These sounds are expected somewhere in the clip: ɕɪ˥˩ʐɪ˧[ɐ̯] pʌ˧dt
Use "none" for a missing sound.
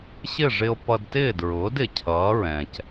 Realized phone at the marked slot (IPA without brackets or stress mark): o̯